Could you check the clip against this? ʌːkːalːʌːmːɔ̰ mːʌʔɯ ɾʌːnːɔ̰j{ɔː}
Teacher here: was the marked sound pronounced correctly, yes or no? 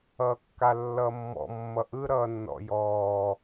yes